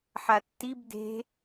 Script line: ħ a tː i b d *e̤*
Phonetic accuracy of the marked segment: correct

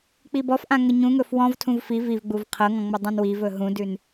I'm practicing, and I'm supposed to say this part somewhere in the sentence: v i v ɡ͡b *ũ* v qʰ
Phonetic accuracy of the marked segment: incorrect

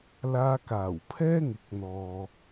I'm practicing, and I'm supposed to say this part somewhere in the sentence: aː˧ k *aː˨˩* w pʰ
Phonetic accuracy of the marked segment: correct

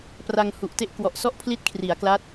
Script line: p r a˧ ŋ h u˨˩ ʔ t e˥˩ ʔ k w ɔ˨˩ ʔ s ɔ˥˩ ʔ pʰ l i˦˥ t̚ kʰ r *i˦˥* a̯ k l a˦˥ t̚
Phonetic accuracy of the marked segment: incorrect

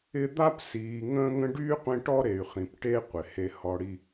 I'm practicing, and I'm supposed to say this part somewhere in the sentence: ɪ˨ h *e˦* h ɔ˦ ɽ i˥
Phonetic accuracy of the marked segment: correct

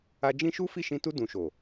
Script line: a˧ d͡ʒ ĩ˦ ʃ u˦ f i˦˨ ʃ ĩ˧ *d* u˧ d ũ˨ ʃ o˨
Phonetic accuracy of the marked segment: incorrect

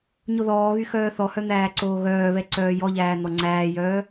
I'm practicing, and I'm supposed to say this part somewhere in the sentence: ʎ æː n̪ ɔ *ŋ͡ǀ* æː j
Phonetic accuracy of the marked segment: correct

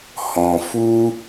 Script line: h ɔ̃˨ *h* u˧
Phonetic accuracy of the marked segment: incorrect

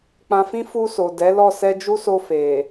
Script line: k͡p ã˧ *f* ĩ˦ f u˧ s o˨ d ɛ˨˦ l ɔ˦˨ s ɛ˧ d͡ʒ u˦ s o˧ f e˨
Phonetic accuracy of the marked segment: correct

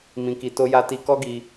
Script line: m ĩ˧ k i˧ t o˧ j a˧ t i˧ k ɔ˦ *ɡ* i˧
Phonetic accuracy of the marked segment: correct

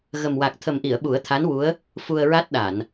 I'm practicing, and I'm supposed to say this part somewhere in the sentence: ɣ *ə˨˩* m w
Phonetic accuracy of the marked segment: correct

